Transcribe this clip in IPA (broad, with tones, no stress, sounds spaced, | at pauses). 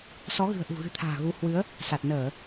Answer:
s ɔ˨˦ ɣ ɨ̤˨˩ ə̯ ʔ ṳ˨˩ ɣ ɨ̤˨˩ t̪ʰ a̤ː˨˩ ɣ u˨˦ h w ɨ˨˦ ə̯ | s a˨˩ t̚ n əː˧˩˨